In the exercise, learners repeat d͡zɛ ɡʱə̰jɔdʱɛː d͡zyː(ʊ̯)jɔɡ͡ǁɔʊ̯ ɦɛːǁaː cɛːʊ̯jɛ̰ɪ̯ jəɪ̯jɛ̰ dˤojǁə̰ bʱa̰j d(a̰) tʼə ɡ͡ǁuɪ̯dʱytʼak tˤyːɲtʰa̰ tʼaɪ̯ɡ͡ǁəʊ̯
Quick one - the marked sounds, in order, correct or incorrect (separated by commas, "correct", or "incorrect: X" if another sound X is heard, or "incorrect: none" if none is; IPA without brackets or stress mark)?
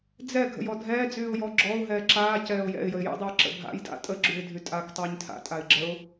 correct, correct